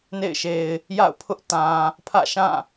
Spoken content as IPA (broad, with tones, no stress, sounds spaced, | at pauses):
n ḛ˦˨ ɪ̯ ʃ e˨ ɪ̯ | j a̰˦˨ ʊ̯ pʰ ʊ˦ ʔ t ã˨ | pʰ ä̰˦˨ ʃ ã˦˨